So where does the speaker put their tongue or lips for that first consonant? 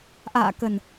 throat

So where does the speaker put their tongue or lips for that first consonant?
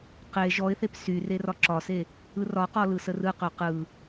uvula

